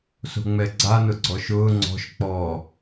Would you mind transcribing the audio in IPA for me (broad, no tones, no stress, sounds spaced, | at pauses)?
s o̤ ŋ͡m ɛ ɡ͡ǀ a n ʊ ɡ͡ǀ ɔ ʃ ʊː ŋ͡ǀ ɔ̤ ʃ k͡p ɔ